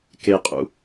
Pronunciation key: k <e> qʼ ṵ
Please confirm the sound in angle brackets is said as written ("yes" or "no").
yes